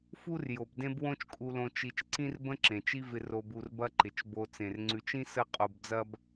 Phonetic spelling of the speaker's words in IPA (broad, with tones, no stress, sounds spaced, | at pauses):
f u˦ r j o˩ b d ẽ˦ b w õ˦ t͡ʃ kʼ u˨ l õ˨ t͡ʃ i˨ t͡ʃ ǀ ĩ˥ r b ə̃˥ ǁ ẽ˩ t͡ʃ i˦ v ɪ˨ r o˨ b u˨ r b ɐ˦ ǃ ɪ˩ t͡ʃ b o˨ t͡s ẽ˩ r ŋ͡ǀ ʉ˨ t͡ʃ ĩ˥ s ə˥ qʼ o˨ b d͡z ɐ˥ b